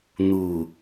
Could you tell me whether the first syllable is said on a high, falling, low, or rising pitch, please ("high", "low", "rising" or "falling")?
low